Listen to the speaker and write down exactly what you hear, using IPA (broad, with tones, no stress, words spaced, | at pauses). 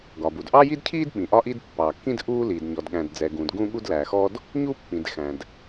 ɡɒ˩bu˩d ʔɑ˥ji˥dcʰiː˥d ɓĩ˩ʔɒ˥ʔi˥d pːɑ˩kːĩ˥d ʔuː˥liː˩d ɲɔ˩dɠæ̃˩dd͡zɛ˩ ɡũ˩d ɡũ˥ɠu˥d læ˩xɔ˥d | ɲu˥pːĩ˩d xæ̃˩d